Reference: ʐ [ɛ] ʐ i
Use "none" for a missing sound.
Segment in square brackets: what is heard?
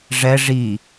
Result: ɛ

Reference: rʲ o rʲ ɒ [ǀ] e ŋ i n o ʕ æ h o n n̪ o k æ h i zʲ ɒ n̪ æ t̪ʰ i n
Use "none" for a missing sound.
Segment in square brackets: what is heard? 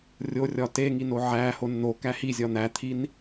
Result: t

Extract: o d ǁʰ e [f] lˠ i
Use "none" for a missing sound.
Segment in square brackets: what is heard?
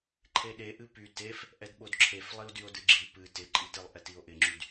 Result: f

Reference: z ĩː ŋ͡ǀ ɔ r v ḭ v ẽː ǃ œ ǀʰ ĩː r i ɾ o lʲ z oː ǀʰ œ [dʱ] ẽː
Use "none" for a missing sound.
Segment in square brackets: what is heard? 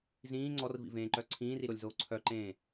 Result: ǃ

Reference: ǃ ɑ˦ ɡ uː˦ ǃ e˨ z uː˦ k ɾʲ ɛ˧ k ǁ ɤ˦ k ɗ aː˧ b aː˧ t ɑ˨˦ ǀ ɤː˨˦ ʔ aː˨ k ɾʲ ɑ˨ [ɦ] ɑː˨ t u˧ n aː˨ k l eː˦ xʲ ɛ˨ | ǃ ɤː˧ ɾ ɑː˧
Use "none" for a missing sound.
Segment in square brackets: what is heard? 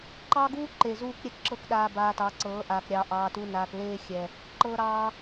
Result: ʔ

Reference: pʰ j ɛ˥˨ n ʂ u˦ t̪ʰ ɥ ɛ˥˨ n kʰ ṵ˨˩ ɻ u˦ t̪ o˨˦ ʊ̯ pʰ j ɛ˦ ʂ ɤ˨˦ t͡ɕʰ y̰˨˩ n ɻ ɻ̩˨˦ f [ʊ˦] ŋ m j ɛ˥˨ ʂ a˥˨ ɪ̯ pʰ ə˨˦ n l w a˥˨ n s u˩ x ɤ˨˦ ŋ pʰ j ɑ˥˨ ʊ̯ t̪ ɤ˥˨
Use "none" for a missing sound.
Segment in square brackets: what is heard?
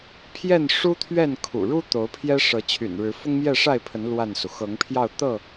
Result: ʊ˦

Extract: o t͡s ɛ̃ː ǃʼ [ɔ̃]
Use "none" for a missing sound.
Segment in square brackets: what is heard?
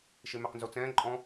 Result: ɔ̃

